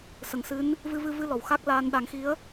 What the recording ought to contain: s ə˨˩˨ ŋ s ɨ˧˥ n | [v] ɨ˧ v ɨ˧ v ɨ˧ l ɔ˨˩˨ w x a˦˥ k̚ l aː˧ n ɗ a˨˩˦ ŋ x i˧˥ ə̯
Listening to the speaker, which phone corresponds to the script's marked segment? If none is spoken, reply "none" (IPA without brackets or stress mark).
v